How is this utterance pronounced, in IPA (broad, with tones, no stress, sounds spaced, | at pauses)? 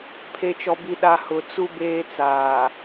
pʰ e˨ t͡ʃ ɔ˨ b i˨ ɗ a˨ h ʊ˨ t͡s u˦ b eː˦ t͡s aː˨